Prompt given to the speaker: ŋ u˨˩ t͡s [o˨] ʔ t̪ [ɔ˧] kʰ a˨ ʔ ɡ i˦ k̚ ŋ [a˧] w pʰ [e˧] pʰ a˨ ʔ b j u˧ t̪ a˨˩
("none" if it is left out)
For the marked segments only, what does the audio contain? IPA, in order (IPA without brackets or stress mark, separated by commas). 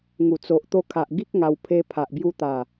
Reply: o˨, o˧, a˧, e˧